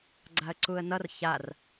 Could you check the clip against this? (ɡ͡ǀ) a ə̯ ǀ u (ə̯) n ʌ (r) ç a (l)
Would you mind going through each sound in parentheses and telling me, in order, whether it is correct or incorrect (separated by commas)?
correct, correct, correct, incorrect